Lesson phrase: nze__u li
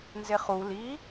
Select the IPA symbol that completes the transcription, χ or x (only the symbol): χ